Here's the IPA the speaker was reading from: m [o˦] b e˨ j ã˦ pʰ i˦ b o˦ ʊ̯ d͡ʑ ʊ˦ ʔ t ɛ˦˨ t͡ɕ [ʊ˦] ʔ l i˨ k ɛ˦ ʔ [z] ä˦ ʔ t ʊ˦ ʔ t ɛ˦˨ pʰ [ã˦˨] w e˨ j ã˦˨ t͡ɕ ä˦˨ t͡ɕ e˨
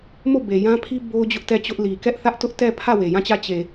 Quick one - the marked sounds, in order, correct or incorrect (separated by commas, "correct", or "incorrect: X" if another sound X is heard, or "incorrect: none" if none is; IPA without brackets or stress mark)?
incorrect: o˦˨, correct, incorrect: θ, incorrect: ä˦˨